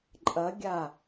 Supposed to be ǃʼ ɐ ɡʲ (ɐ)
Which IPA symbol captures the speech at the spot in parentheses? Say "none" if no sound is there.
a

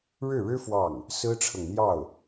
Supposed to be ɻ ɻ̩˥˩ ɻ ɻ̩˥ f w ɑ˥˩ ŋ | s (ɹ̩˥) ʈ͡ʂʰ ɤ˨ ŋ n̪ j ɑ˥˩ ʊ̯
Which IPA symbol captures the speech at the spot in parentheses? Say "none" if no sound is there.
ɹ̩˥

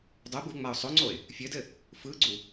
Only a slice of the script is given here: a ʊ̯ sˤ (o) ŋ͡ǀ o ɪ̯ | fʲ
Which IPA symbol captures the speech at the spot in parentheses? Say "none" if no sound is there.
o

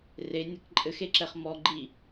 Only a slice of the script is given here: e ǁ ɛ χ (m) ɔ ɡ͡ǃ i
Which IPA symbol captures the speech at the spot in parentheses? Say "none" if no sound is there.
m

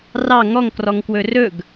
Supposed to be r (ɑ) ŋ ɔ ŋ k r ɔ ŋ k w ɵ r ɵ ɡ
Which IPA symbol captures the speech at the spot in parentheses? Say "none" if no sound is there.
ɑ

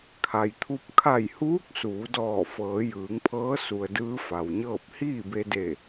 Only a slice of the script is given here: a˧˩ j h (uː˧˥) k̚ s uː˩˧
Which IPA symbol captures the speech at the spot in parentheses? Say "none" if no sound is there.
uː˧˥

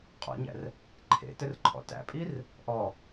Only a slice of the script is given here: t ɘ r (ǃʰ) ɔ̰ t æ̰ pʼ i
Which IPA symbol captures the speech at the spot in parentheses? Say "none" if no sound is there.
ǃʰ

